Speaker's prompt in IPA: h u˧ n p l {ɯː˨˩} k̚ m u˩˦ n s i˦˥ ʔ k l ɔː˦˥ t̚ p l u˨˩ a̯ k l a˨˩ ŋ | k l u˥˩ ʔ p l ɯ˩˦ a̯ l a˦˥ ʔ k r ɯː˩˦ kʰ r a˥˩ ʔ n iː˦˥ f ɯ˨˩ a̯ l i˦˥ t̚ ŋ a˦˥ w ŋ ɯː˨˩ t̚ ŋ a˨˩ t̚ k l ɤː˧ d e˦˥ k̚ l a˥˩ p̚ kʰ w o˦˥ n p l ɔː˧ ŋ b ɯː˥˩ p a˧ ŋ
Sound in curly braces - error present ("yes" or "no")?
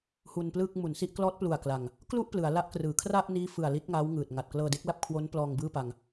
yes